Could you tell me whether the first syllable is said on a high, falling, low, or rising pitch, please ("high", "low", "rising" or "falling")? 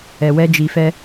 low